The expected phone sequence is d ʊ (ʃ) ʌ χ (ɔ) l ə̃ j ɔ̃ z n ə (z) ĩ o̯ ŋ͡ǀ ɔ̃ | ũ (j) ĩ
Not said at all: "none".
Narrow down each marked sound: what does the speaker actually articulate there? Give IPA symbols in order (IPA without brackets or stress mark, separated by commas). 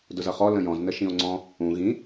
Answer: z, ɔ, ʃ, ɣ